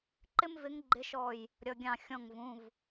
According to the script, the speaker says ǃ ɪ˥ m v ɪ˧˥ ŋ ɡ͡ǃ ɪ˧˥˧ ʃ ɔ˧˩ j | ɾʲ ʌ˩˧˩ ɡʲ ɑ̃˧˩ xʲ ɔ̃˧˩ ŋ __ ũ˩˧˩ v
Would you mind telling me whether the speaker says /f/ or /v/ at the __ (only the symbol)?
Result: v